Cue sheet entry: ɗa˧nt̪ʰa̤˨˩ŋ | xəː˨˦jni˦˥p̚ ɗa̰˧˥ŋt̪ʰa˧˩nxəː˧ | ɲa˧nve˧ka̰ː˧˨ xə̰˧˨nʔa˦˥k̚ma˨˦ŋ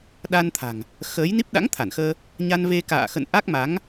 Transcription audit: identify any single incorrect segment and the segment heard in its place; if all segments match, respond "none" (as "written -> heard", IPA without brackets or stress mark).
none